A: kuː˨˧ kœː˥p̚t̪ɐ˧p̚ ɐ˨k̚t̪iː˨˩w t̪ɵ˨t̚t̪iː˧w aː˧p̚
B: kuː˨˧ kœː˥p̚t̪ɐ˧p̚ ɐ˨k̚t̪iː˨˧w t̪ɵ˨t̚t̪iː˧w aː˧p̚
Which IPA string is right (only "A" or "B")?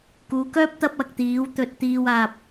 B